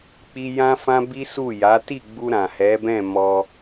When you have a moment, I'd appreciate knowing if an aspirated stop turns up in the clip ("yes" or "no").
no